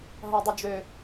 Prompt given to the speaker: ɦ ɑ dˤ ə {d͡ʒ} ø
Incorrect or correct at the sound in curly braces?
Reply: correct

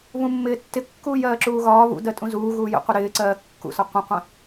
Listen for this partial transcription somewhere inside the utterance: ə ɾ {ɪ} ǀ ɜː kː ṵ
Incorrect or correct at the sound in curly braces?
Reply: incorrect: ɪː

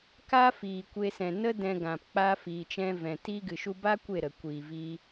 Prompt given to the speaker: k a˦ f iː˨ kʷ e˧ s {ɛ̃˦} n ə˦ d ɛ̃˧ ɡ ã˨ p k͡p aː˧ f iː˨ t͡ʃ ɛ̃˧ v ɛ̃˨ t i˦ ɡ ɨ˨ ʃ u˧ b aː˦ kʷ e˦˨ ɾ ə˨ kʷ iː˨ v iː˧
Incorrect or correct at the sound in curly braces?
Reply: incorrect: ɛ̃˨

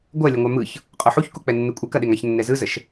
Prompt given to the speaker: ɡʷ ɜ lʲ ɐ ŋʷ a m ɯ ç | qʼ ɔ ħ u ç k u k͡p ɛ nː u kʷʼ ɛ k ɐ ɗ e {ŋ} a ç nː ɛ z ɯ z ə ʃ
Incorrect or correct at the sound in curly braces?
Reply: correct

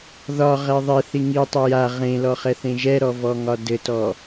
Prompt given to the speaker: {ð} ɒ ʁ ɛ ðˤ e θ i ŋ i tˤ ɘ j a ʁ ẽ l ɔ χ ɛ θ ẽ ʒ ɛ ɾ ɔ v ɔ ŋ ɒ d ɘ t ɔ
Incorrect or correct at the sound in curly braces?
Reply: correct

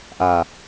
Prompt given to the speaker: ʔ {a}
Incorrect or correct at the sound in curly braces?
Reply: correct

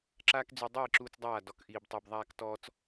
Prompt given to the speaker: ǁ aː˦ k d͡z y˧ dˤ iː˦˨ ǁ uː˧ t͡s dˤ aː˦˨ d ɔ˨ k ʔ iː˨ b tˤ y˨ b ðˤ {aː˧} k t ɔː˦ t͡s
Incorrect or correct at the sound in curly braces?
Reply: correct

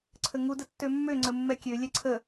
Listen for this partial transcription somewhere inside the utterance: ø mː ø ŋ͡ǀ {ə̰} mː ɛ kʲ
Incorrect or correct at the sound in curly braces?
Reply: incorrect: ə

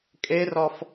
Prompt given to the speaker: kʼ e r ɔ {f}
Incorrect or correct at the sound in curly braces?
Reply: correct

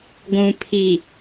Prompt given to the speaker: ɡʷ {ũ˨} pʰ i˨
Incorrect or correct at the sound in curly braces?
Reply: correct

